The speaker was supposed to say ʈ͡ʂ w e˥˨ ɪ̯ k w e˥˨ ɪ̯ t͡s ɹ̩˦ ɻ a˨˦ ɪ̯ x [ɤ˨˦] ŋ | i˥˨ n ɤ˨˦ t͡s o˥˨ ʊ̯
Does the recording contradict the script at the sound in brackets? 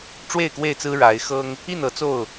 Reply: yes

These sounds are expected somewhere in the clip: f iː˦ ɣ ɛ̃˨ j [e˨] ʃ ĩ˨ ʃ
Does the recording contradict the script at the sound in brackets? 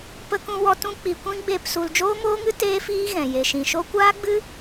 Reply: no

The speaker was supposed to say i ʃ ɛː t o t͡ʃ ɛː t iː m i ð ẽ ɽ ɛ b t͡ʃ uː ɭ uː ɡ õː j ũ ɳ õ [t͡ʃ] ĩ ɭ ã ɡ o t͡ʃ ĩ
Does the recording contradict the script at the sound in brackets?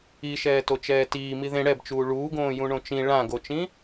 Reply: no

